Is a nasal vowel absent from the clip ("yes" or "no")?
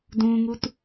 no